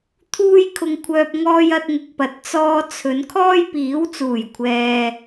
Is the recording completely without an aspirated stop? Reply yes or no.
no